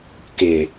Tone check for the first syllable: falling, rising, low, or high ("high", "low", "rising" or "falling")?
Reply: low